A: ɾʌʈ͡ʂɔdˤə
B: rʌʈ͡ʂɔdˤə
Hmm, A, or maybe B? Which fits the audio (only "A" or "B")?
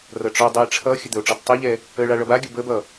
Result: B